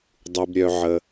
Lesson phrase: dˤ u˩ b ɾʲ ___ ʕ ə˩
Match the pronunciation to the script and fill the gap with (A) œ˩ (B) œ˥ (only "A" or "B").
A